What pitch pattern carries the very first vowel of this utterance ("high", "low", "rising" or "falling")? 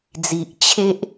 low